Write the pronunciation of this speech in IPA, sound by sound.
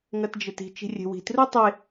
ŋ ɐ t d͡ʒ ɘ t i̤ t͡ʃ i̤ rʲ e̤ w i̤ t r u tˤ e

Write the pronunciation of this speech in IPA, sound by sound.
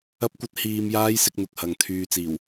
ɐ˥ p̚ kʷ ɐ˥ t̚ h iː˧ m j aː˥ j s ɪ˧ k̚ n̪ ʊ˨ k̚ h ɐ˨ ŋ t̪ʰ yː˧ t͡s iː˨˩ w

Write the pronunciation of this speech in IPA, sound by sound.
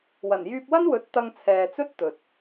w ɐ˨˩ n j yː˧ p̚ w ɐ˥ n w ɵ˨˥ t̚ t̪ ɐ˧ ŋ t͡sʰ ɛː˨ t͡s ɵ˥ t̚ t̪ ɵ˨ t̚

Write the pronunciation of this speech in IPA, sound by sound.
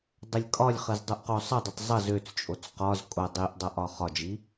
dˤ ə lʲ kʼ ɒ lʲ χ ə z dˤ o ʔ q o sˤ ə dˤ ʊ tˤ zˤ ʌ z ø t͡s t͡ʃʼ o t͡s q ɒ z kʼ o dˤ i ʔ dˤ a ʔ ɒ χ ɒ d͡ʒ i

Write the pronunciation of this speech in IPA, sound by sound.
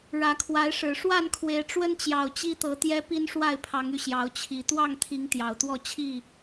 ɻ ä˨˦ kʰ w a˨˦ ɪ̯ ʂ ɻ̩˨˩ ʂ w a˥˨ n kʰ w e˨˦ ɪ̯ ʈ͡ʂ w ə˦ n t͡ɕ j ɑ˨˩ ʊ̯ t͡ɕ i˦ t̪ ɤ˨˦ t̪ j ɛ˦ p i˦ n ʂ w a˥˨ ɪ̯ pʰ ɑ˨˦ ŋ y˧ ɕ j ɑ˨˦ ʊ̯ t͡ɕʰ i˨˩ t̪ w ɑ˥˨ ŋ t̪ʰ i˨˦ ŋ t̪ j ɑ˨˩ ʊ̯ t̪ w ɔ˥˨ t͡ɕʰ i˥˨

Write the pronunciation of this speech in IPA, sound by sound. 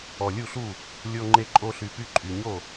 ɔ˨˩ lʲ u˥˩ ɬ u˥˩ | lʲ o˦ ŋ͡ǃ e˦ ǃʼ o˦ ɬ y˨˩ p y˥˩ ǃʼ y˨˩ ɲ o˥˩

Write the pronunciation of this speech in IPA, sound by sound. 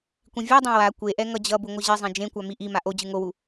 kʷ ĩ vʲ a dˤ ẽ w a kʷ e ʔ ɛ ŋ ʌ d͡ʑ ʌ b u ŋʷ ʌ ʑ i zˤ ẽ d͡ʒ ẽ kʷ a m i ʔ i m a ʔ o d͡ʑ ɯ ŋ o w u

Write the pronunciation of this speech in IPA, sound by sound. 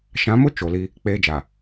ʃ ã˨˦ m ʊ˦ t͡ʃ o˨ l i˦ | k͡p eː˦ d͡ʒ a˨

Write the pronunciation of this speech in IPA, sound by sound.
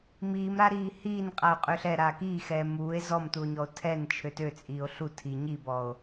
m iː m ɾ a ɾ iː h iː n qʼ a o̯ qʼ ø ɬ ɛ ɾ a k iː x ɛː m uː e̯ z ɔ m t u o̯ ɲ ɔ o̯ tʰ ɛ n t͡ʃʰ ø t ø t͡sʼ iː o̯ ɬ u tʰ i ɲ i b ɔ o̯

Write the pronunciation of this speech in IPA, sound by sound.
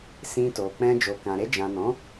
s ĩ˧ t o˨ k͡p ɛ̃˧ d͡ʒ o˨ k ã˨ ɾ e˧ d͡ʒ ã˨ n ɔ̃˨˦

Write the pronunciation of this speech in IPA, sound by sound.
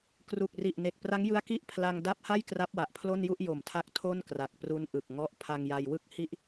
k r u˨˩ k̚ r i˨˩ ʔ n e˨˩ k̚ p r a˦˥ ŋ j ɯ˦˥ a̯ k i˥˩ ʔ pʰ l a˧ ŋ d a˦˥ p̚ h a˥˩ j k r a˦˥ p̚ w a˨˩ ʔ pʰ l o˥˩ n j u˥˩ ʔ j o˨˩ m tʰ a˦˥ k̚ tʰ o˥˩ n k r a˨˩ k̚ p r u˦˥ n ʔ ɯ˨˩ k̚ ŋ ɔ˦˥ ʔ pʰ a˧ ŋ j a˧ j w ɯ˥˩ k̚ h i˥˩ ʔ

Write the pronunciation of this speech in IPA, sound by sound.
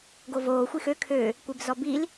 ɡ o v oː xʷ i x ø kʰ ø | kʷ e b z ɔ b i l

